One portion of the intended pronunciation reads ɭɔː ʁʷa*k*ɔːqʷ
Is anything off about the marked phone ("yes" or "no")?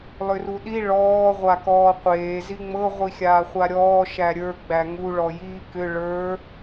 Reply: no